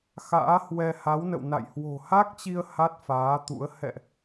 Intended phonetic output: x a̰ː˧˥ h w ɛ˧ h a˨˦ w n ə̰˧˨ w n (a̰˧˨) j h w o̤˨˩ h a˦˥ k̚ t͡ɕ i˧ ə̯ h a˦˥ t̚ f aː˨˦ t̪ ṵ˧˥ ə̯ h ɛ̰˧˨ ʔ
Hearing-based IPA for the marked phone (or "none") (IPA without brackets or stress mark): a̰˧˨